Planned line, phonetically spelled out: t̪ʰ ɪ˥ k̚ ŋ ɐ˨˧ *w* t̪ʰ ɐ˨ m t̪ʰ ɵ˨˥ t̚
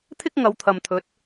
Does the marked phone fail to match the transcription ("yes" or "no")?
no